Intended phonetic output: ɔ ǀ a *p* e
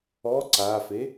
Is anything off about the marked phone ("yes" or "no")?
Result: yes